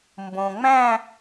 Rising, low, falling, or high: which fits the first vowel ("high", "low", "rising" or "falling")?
low